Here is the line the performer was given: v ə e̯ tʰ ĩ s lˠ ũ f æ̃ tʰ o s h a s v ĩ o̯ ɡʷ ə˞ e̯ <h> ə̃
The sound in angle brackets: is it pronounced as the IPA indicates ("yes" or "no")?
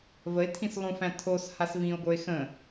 no